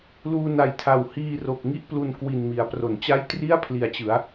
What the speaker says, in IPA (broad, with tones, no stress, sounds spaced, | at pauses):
l uː˧ n a˨˩ j tʰ a˨˩ w h iː˧ r o˨˩ k̚ ŋ i˥˩ ʔ p l u˧ n k w i˨˩ n m i˩˦ a̯ p r o˩˦ n t͡ɕ a˥˩ j t r i˥˩ a̯ pʰ l i˨˩ a̯ t͡ɕ ɯ˩˦ a̯